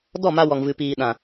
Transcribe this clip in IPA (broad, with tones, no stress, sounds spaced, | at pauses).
d ɔ˦˨ m a˧ w ɔ˨ ŋ v ɨ˨ p iː˨ ɗ ã˨